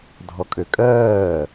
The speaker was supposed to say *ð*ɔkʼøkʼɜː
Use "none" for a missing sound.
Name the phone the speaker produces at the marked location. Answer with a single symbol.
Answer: dʱ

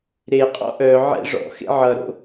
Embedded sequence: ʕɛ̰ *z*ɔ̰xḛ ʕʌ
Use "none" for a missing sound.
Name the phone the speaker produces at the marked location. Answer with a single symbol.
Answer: ʐ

